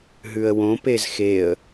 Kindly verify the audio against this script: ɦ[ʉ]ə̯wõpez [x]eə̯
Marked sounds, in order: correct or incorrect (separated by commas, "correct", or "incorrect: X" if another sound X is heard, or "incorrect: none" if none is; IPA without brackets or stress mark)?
correct, correct